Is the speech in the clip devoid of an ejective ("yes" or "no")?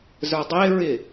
yes